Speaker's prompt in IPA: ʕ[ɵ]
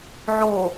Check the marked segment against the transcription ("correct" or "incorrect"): incorrect